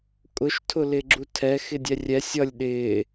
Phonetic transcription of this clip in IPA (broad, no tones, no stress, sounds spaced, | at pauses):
kʼ ʊ ʃ tʰ ʊ l ɪ ɡ͡ǁ u tʰ ɛ x ɪ dʲ ɛ rʲ ɛ sʲ ʌ lʲ ɗ ɪː